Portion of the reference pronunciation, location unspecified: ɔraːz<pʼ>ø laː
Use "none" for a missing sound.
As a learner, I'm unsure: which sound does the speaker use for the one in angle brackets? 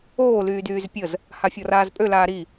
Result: pʼ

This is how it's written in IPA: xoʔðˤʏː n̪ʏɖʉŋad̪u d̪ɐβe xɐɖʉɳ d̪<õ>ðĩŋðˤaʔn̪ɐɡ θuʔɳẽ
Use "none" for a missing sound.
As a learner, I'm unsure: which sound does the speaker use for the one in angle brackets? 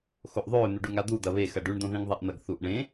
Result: õ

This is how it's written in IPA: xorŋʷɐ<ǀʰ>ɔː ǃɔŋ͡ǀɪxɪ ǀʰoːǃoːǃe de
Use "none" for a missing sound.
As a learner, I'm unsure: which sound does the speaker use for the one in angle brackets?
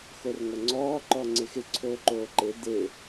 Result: ŋ͡ǀ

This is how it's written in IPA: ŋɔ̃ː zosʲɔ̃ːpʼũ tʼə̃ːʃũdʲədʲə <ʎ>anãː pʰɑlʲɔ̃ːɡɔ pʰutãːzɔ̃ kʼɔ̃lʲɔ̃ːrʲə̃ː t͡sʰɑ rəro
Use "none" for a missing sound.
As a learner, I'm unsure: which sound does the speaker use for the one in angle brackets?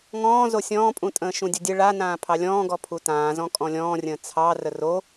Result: ɭ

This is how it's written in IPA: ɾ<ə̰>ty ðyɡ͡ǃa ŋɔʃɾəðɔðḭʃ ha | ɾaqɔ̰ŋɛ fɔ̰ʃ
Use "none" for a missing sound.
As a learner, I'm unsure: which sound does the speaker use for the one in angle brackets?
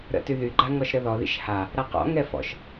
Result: ə̰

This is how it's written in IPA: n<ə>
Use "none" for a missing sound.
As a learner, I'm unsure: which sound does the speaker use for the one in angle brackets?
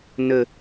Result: ə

